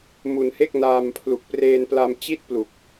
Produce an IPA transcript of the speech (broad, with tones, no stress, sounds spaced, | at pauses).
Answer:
m u˧ n h e˥˩ k̚ n aː˧ m pʰ l u˨˩ k̚ p r eː˧ n p l a˧ m t͡ɕ i˥˩ t̚ p l u˨˩ k̚